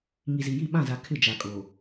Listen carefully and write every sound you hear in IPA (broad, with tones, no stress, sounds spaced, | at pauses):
ŋ i˨ z i˨ j i˦˨ ɓ ã˦˨ z a˨ kʰ ɪ˦˨ d͡ʒ a˨ kʼ oː˨